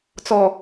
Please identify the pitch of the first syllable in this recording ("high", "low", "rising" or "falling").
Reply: low